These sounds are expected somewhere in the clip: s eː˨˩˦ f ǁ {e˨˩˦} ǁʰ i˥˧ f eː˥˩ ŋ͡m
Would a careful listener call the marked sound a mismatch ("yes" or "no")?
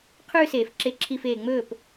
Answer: yes